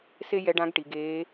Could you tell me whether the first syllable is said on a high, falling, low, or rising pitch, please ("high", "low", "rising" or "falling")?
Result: high